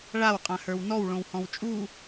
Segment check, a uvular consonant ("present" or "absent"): present